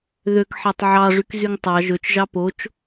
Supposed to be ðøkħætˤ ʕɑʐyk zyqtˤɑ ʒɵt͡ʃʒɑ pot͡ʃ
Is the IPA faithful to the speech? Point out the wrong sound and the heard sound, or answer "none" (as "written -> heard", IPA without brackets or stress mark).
q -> ŋ